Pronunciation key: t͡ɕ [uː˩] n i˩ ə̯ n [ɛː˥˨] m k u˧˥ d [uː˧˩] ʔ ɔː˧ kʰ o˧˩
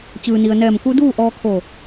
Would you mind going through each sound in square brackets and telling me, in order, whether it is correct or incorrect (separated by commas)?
incorrect, incorrect, incorrect